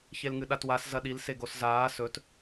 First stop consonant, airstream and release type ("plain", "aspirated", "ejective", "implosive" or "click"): implosive